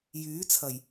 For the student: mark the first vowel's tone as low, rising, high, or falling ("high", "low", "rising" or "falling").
rising